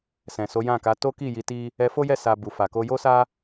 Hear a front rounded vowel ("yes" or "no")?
no